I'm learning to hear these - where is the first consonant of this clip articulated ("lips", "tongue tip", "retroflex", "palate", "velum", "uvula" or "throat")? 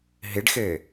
throat